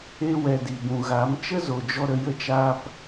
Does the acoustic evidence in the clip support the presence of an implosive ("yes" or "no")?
no